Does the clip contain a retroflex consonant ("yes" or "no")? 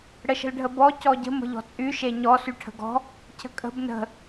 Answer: yes